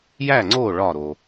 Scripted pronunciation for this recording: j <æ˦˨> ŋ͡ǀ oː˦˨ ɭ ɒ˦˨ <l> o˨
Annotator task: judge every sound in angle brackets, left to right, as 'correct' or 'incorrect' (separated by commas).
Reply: correct, incorrect